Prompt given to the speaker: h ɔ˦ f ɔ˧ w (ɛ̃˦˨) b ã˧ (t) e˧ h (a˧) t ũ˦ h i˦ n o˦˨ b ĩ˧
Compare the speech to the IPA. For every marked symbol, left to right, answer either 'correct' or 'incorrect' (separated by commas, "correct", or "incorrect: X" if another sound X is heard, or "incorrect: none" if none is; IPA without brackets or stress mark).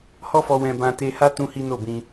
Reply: incorrect: ɛ̃˧, correct, incorrect: a˦